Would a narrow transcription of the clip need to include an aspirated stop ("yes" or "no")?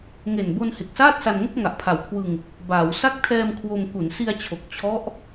yes